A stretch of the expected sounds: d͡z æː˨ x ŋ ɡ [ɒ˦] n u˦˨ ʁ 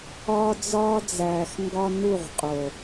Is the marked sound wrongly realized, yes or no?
no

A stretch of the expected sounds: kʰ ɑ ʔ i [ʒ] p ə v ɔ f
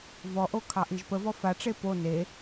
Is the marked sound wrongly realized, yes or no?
no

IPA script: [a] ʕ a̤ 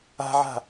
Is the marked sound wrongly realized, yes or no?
yes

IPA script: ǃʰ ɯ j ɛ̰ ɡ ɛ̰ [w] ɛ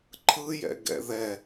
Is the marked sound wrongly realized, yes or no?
yes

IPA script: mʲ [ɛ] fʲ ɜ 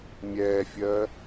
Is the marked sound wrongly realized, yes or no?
no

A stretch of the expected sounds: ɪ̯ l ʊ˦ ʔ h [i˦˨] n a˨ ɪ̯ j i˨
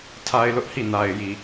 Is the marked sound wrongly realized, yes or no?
no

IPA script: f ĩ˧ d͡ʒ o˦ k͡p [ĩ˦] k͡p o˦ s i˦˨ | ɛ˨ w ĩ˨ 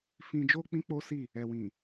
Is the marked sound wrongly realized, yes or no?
no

